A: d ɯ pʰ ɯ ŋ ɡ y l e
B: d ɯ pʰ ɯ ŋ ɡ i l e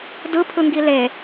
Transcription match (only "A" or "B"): B